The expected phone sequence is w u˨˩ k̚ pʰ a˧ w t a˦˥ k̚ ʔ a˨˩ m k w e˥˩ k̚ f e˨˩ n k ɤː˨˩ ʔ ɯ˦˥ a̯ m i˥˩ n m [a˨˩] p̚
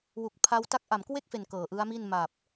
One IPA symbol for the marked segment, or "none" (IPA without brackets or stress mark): a˨˩